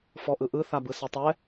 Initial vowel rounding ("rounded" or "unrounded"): rounded